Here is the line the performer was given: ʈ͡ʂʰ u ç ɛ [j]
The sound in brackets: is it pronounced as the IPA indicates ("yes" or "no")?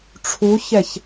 no